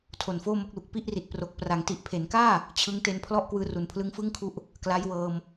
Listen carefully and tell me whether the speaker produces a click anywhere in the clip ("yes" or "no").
no